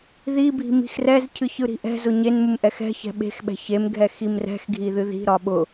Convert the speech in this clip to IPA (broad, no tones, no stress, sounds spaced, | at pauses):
ð i bʱ i̤ m i̤ x r ɛ z cʰ ɨ ç ɯ ɾ i̤ ʔ ɛ̤ z ʊ ɲ e n m ɯ m ʔ ɛ x ɛ̤ ç ɛ̤ ɓ e̤ x ɓ ɛ̤ ç e m ɡʱ ɛ x i m r ɛ̤ x ɡʱ i ð ɨ ð i̤ ɾ ɒ ɓ ʊ